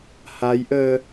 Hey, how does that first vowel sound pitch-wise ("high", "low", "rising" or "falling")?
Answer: rising